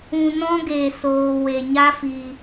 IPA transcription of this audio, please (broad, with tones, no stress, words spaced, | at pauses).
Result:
ũ˧nɔ̃˦ ɡeː˨soː˨we˨ ɲa˦fiː˧